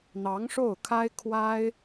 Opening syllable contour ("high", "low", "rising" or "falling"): rising